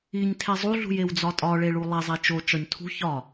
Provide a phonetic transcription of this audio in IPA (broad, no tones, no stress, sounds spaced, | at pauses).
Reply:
i ɲ tʰ e zˤ u ɮ ṳ j e w d͡z ɒ tʼ ɒ ɭ e ɭ u lˠ e zˤ e t͡ʃ o t͡ʃ ɒ ɲ tʰ ṳ ç ɒ